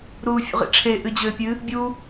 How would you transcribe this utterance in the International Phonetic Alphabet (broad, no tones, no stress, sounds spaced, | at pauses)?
ɾ uː fʲ ṵ ʁ ḭ ʈ͡ʂʰ e ʔ ɨ d͡ʑ ɘː pʲ ɨ | bʲ u